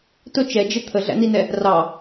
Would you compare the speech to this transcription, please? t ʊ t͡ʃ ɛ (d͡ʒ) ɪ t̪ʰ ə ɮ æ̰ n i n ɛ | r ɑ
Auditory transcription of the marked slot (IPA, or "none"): d͡ʒ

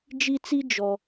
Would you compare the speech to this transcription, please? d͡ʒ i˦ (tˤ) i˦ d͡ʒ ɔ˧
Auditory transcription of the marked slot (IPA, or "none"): t͡s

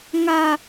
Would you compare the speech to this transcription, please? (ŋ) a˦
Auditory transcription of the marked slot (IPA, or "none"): ŋ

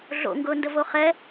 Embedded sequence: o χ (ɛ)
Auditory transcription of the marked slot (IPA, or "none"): ɛ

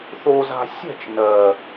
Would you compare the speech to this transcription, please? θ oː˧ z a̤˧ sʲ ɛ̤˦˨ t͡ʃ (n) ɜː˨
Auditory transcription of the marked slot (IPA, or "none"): n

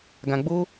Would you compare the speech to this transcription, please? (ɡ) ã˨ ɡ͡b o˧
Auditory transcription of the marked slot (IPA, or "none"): ɡ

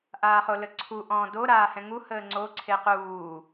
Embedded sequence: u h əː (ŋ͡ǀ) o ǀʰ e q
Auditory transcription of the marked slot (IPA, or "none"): ŋ͡ǀ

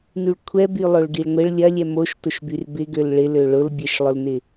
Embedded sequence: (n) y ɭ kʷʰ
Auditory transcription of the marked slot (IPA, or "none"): n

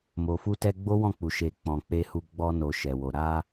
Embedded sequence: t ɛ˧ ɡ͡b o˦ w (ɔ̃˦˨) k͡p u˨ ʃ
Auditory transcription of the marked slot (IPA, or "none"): ɔ̃˦˨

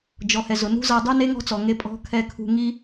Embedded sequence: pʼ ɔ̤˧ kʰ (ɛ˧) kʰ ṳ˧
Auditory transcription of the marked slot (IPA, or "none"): ɛ˧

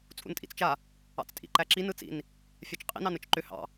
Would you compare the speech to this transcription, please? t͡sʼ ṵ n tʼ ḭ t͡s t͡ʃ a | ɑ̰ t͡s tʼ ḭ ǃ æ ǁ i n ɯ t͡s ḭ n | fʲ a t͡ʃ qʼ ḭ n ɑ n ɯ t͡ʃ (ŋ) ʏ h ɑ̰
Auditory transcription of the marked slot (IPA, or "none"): ǃ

